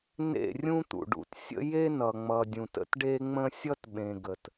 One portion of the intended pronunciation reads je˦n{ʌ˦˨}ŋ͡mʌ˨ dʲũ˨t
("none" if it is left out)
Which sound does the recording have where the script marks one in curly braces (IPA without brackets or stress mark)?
ʌ˨